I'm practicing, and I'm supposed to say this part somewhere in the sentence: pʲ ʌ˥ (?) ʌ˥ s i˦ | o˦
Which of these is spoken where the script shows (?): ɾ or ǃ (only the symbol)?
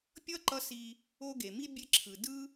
ǃ